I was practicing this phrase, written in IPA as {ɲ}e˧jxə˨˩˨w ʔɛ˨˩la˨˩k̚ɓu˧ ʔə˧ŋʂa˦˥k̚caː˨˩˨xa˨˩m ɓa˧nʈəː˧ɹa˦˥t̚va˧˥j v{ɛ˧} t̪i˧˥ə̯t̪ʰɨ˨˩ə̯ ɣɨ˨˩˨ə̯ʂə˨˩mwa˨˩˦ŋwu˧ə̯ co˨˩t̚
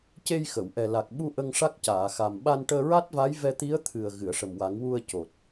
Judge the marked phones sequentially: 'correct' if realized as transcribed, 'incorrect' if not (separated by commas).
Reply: incorrect, correct